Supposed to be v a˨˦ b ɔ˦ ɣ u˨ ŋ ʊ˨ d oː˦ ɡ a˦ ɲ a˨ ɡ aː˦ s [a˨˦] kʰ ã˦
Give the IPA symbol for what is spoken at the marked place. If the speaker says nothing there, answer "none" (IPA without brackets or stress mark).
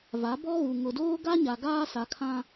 a˨˦